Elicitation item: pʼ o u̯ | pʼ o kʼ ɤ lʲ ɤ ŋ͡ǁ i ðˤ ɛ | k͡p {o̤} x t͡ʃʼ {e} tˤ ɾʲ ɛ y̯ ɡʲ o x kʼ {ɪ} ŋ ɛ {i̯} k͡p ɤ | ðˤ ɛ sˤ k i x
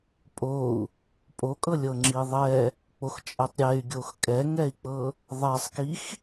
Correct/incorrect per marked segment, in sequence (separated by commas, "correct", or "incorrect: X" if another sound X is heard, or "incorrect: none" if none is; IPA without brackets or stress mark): incorrect: o, incorrect: ɛ, incorrect: ɛ, correct